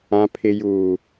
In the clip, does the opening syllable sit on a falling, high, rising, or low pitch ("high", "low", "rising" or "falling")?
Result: low